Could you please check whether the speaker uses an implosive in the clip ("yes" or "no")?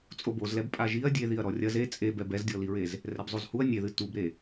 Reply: no